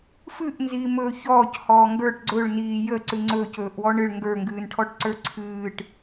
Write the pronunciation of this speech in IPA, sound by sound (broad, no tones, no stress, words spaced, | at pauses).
fɨʔnziːmɵː çɔːchɔː ŋɡə˞ʈ ɡ͡ǀɵɭniː jəǀɨ ŋ͡ǀɵːcɵːʔwɔ ɳɨɭ ŋɡə˞ŋɡɨːnʈʰɔʈǀə˞ ǀʰɨːʈ